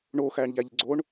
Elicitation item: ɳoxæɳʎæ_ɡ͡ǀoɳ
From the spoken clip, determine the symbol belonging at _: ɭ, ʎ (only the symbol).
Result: ʎ